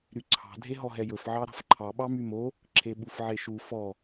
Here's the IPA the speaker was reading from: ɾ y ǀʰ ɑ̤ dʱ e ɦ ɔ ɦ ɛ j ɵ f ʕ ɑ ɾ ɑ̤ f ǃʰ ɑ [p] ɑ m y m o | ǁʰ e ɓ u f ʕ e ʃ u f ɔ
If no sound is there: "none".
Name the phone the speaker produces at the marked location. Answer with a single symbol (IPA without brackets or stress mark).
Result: ɓ